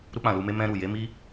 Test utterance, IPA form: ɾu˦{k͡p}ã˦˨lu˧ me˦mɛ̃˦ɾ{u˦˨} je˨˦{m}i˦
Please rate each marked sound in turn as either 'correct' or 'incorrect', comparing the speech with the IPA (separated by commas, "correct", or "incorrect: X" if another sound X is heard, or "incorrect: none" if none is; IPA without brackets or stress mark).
correct, correct, correct